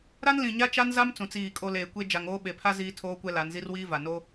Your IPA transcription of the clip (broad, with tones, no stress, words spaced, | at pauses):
ɾa˦nlĩ˨ɲa˦ t͡ʃa˦nza˦m t͡sũ˨t͡siː˦˨kʼo˦ leː˨kʷe˦ d͡ʒa˨ŋoː˦ ɓe˨pʰa˦ ziː˦tʰoː˦kʷɛ˦ la˨˦nzi˦rwiː˦va˨ no˦